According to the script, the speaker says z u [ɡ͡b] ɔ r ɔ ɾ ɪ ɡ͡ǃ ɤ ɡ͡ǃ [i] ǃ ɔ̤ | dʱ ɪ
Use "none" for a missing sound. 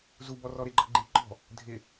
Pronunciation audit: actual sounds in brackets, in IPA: b, i

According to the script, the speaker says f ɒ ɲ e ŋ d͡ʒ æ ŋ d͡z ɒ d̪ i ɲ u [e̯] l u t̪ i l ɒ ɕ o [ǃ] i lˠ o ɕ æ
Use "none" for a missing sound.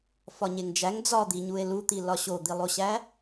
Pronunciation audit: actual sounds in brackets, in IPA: e̯, d̪

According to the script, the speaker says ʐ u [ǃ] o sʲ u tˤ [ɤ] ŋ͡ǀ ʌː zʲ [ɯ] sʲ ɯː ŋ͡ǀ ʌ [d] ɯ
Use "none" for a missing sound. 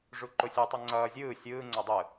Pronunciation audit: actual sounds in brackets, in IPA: ǃ, o, ɯː, dˤ

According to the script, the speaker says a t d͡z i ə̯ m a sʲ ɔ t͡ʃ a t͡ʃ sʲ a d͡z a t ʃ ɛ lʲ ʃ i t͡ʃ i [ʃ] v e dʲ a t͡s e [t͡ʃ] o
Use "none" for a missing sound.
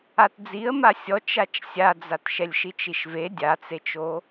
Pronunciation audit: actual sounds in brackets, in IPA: ʃ, t͡ʃ

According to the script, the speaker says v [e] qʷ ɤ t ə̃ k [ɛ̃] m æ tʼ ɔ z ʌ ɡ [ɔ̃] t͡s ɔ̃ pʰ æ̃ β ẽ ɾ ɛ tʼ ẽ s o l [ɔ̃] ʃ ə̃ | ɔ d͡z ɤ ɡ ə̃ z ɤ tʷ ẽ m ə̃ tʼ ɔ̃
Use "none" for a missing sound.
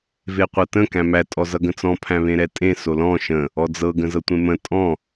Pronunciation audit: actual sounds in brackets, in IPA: e, æ̃, ə̃, ɔ̃

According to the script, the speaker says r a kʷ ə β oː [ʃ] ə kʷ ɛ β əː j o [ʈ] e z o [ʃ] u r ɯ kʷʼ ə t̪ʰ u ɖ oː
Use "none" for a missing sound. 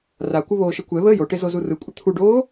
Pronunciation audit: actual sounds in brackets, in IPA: ʃ, ʈ, z

